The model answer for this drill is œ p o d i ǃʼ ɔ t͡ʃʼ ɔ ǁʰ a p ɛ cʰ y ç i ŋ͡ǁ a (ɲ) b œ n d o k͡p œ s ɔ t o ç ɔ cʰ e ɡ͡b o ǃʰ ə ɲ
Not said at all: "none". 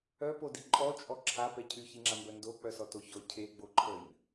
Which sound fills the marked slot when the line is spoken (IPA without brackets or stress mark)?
m